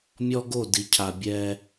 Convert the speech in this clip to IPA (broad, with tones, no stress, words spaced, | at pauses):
mʲɔ˦ɡo˦˨ di˨cʰa˨bʲɛ˦